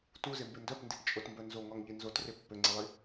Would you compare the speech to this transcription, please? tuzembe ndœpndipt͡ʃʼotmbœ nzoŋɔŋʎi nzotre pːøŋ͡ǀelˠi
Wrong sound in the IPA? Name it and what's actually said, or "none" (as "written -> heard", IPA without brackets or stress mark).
none